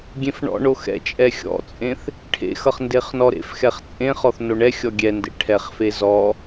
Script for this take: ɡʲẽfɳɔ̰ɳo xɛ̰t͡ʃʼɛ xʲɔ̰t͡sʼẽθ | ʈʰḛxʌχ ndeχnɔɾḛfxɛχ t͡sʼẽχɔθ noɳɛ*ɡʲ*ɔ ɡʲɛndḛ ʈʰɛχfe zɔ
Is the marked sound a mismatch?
yes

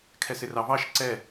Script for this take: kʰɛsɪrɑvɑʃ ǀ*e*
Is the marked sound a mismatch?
yes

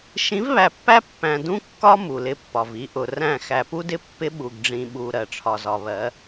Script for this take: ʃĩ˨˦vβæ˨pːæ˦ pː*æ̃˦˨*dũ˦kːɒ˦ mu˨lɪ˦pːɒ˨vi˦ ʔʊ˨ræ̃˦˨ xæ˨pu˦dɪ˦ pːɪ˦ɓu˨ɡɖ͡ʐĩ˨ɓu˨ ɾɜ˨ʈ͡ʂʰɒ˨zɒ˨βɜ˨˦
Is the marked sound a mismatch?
yes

